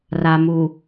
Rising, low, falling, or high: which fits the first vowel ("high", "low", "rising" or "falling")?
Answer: low